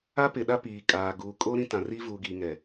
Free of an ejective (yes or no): no